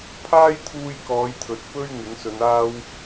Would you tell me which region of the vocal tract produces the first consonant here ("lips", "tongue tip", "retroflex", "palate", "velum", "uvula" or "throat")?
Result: lips